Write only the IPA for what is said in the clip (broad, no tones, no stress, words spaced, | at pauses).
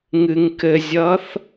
ŋɨŋkɘzʲʌθ